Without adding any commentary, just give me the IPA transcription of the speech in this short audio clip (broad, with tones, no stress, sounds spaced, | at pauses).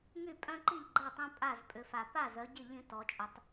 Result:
ŋ y˥˩ pʼ œ̃˦ ǃ i˥˩ ʎ ɡ͡ǃ a˥˩ tˤ ɛ̃˦ pʼ a˥˩ z pʼ ʏ˩˧ f a˩ p a˥˩ z œ˩˧ ɟ ɪ˥˩ ʎ ĩ˦ t ɔ˩˧ t͡ʃʼ ə˩˧ tˤ